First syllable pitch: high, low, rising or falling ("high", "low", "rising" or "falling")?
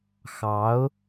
rising